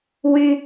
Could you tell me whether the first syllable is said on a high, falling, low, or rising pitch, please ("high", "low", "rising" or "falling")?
high